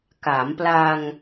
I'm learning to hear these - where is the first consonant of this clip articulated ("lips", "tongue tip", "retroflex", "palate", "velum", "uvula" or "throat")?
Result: velum